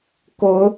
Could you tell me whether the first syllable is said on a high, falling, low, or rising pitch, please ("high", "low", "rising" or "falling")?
rising